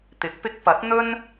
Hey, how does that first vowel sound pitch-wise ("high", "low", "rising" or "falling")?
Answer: rising